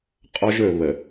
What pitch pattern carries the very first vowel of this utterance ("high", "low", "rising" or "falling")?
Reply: high